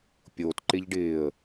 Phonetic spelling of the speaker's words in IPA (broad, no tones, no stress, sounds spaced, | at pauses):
pʲ o t ǃ ɪ ʎ ɖ ɪː ə̯